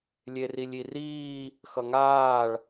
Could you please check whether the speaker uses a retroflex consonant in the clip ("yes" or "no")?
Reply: yes